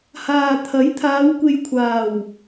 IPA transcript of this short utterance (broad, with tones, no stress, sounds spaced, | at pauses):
h aː˨ t̪ʰ ɐ˨˥ j t̪ʰ aː˨˧ w kʷ e˨ j kʷʰ aː˨˩ w